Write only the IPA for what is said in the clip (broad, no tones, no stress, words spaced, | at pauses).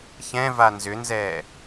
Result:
çɛ̃va nzʏnzɛː